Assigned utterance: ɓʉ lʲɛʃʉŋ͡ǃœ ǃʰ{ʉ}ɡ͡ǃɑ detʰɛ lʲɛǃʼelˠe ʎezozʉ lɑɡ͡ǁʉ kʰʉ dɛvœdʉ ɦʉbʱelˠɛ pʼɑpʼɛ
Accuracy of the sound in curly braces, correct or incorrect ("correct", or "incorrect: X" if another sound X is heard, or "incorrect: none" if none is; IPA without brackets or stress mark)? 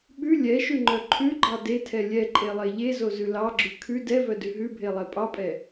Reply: correct